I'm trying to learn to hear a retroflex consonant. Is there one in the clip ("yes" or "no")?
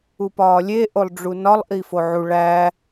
yes